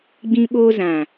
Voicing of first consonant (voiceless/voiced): voiced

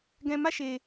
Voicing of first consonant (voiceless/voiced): voiced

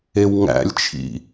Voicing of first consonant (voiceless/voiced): voiced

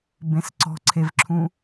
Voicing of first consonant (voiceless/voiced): voiced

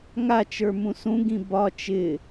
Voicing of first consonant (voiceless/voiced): voiced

